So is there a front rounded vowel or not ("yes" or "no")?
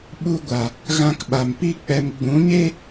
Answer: no